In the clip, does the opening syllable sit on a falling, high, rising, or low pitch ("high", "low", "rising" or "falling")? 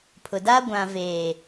low